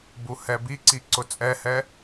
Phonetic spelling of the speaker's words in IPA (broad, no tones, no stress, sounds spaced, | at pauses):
b u h ɛ b i ǀ i ǀ ʊ t͡sʼ ɛ h ɛ